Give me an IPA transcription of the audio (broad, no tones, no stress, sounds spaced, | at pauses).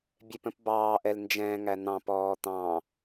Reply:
bʲ ɛ p ə̃ p b ɑː ʔ ɛ l n d͡ʒ ɛ̃ː ŋ æ n̪ ɑ̃ p ɔː t̪ ɑ̃